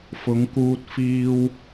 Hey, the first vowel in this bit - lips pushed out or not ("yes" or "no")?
yes